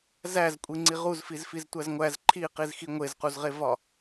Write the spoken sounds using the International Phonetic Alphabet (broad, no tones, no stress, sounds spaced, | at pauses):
z æ z kʷʼ i ŋ͡ǀ i ʁ u z f i z f i z tʷ æ z ŋʷ æ z ǃʰ i q i z x i ŋʷ e z q u z ʁ e v ɒ